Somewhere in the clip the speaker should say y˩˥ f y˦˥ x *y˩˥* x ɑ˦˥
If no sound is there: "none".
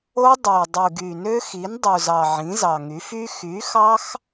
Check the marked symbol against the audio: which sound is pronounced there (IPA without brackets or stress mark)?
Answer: y˩˥